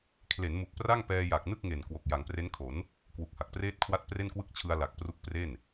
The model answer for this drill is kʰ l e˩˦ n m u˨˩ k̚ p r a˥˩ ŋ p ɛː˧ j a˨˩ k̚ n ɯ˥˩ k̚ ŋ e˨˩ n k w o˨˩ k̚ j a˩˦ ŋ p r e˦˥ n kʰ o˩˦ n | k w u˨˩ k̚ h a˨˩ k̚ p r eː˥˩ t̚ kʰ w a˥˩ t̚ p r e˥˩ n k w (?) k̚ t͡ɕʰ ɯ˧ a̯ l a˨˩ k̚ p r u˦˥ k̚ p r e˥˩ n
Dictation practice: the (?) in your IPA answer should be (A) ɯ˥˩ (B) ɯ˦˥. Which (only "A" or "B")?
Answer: A